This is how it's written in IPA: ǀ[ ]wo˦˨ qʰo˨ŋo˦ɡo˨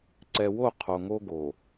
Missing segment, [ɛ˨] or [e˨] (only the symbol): ɛ˨